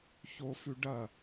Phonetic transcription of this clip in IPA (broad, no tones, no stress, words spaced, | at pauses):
çofʉɖɐ